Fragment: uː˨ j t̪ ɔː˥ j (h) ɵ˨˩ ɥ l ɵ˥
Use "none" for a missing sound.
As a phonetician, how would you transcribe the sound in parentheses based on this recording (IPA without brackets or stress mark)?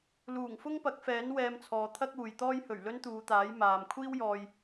h